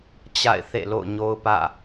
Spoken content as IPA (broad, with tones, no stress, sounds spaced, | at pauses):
t͡ɕ a̰˦˨ ɪ̯ θ ḛ˦˨ l o̰˦˨ ʊ̯ ɲ o˦ ʊ̯ p ä̰˦˨